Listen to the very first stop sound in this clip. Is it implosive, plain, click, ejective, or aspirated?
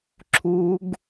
click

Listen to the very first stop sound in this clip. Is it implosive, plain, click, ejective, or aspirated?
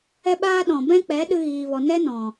implosive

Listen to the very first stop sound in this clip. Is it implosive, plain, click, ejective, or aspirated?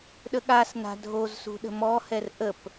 implosive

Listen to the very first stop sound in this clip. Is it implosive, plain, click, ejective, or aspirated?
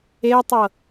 plain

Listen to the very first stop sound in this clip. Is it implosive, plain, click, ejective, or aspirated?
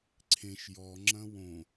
click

